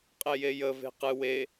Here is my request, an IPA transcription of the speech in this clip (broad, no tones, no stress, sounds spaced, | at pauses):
qʼ e j e j ə v e̤ q ɨ w e